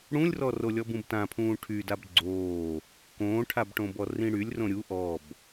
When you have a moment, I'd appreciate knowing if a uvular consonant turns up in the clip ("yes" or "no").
no